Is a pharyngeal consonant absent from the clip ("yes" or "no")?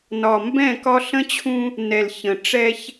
yes